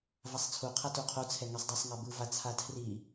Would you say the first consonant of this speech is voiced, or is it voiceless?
voiced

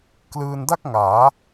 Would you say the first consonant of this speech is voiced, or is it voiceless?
voiceless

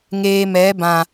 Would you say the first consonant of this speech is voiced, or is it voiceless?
voiced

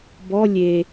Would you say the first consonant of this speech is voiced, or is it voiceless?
voiced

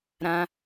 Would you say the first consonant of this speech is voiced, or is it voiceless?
voiced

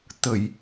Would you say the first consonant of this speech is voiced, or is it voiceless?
voiceless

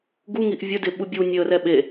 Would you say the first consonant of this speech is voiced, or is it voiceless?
voiced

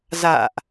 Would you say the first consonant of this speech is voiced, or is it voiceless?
voiced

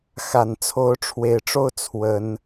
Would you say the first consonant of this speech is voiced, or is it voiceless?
voiceless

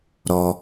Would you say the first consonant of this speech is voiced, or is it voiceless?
voiced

